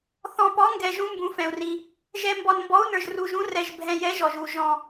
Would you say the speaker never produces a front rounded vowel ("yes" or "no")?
yes